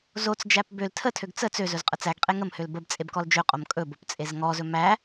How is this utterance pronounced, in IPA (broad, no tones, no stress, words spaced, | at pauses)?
zot͡sd͡ʒæp bøl tʰətʰøɡ t͡sə t͡søzɵz qʼət͡sæɡqʼe ŋəmhøl bəb t͡sʼebkɔld͡ʒøqʼom kʼɵbop t͡sʼezŋɔzɵ mæ